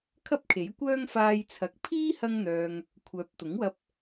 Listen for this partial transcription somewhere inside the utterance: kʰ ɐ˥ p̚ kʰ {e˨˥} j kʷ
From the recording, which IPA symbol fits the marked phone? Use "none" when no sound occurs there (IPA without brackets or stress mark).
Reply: e˨˥